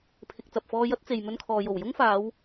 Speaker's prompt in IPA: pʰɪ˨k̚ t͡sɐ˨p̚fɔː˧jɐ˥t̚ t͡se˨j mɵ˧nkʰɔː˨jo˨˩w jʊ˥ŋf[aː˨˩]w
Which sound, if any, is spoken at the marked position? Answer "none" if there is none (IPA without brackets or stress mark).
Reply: aː˨˧